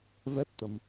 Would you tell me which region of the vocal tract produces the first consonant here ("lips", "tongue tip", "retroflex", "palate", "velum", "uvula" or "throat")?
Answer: lips